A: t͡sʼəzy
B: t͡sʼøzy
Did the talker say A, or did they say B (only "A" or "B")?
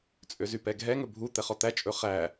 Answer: B